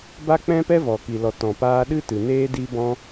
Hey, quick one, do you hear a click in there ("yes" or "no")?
no